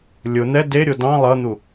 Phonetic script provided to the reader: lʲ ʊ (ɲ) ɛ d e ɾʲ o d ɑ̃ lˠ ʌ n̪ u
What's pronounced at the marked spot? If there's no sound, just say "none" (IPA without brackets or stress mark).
n̪